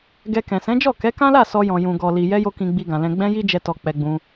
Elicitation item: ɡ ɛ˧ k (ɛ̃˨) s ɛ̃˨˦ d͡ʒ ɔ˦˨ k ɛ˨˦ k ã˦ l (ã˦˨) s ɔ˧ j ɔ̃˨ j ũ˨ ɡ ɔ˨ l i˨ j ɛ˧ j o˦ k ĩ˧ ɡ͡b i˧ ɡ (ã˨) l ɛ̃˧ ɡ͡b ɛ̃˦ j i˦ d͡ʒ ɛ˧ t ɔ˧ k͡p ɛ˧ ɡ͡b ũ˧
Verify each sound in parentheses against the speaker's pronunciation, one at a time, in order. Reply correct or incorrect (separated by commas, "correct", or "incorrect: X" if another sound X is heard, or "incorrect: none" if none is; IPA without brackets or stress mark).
correct, incorrect: a˦˨, correct